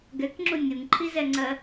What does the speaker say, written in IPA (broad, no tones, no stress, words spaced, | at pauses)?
ɡɛkŋ͡ǁu nʲuŋǃʰizɛŋ͡ǀɜ